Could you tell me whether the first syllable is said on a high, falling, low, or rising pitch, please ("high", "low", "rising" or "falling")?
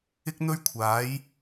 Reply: high